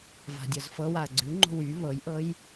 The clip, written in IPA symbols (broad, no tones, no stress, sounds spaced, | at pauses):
v a̤ dʲ ɤ z f ɤ w a ɐ̯ ɡ͡ǀ ʉ ŋ͡ǃ o̤ w y β ɤ j ʔ ɤ j